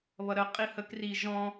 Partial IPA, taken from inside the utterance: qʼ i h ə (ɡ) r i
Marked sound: incorrect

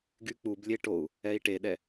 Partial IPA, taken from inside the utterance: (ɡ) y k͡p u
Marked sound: correct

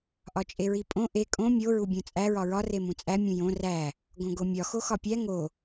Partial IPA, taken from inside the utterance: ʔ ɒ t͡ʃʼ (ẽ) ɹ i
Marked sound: incorrect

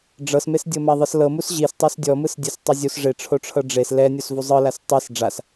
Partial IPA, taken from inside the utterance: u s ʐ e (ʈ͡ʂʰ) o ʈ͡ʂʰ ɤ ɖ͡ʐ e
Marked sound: correct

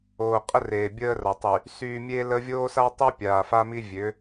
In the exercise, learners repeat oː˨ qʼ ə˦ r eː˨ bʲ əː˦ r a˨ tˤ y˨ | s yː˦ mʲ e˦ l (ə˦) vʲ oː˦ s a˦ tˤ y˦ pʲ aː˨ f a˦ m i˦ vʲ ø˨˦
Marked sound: correct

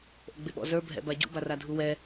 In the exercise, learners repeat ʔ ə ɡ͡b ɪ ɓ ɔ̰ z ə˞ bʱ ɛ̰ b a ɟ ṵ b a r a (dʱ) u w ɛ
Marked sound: correct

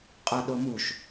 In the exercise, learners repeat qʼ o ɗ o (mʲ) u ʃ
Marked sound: incorrect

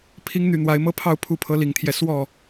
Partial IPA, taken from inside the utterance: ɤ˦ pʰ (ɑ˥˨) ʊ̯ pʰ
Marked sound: correct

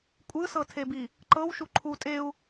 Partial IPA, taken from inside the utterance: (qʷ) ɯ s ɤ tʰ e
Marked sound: incorrect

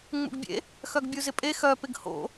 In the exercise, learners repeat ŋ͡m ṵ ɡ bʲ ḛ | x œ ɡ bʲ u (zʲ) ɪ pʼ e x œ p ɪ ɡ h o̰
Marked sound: incorrect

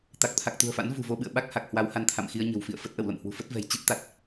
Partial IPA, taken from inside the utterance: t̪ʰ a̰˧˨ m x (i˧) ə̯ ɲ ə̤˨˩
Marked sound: correct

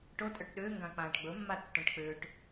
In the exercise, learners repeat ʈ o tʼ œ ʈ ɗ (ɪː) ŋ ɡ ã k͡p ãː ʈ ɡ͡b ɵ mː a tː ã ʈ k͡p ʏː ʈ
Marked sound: incorrect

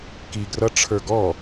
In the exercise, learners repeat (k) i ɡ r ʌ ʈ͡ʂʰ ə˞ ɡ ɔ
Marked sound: correct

